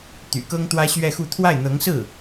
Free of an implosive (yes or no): yes